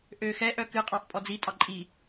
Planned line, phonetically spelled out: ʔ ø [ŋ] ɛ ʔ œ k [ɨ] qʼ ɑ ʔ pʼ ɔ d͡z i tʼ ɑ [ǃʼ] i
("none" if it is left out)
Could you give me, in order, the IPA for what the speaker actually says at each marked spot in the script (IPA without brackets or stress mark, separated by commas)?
x, ɨ, ǃʼ